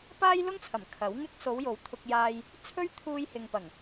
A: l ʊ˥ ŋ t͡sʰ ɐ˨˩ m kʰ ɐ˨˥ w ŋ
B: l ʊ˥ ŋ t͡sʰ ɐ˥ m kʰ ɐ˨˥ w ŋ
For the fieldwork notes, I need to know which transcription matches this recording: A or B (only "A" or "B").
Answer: A